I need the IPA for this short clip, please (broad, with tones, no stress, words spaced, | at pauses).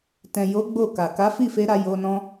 tɛ̃˨jo˨˦ ɡ͡bo˦˨ka˨ ka˨˦fi˦˨fe˧ɾa˧ jo˧nɔ̃˦